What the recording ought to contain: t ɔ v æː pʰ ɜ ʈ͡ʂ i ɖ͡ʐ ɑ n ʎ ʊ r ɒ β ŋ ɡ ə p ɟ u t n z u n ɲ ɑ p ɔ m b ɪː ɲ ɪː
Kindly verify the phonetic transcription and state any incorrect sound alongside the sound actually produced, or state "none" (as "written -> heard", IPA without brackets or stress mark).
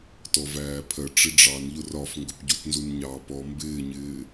β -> f